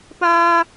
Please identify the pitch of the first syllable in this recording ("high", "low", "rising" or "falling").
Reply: high